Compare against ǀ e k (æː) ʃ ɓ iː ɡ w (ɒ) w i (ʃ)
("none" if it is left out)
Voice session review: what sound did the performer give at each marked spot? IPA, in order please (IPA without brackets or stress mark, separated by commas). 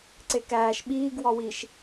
æː, ɒ, ʃ